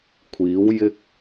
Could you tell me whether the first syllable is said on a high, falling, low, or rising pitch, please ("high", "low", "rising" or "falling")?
rising